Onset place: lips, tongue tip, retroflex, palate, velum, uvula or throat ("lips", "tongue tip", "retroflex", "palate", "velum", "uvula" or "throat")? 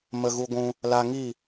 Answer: lips